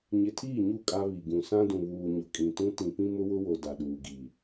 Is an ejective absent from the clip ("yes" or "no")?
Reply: no